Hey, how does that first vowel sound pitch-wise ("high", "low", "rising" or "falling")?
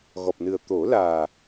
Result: low